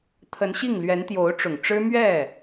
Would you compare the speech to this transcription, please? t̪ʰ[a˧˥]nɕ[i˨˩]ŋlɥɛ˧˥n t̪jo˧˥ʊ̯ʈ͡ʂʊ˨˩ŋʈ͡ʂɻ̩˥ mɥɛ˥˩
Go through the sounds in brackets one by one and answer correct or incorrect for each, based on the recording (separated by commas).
incorrect, incorrect